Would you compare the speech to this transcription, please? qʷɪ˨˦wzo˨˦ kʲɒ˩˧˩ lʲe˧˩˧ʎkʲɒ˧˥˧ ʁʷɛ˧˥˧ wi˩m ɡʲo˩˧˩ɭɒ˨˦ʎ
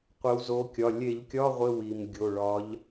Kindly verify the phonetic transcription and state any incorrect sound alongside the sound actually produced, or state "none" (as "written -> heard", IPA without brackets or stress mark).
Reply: ɛ˧˥˧ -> ɪ˧˥˧